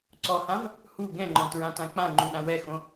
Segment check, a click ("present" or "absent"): present